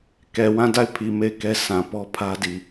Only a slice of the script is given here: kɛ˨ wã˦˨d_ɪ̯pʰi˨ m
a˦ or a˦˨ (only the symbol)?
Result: a˦˨